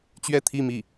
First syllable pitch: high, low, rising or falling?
falling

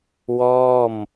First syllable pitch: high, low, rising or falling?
falling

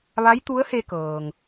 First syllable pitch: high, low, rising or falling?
rising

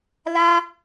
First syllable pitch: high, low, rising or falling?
high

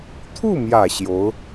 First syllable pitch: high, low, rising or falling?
falling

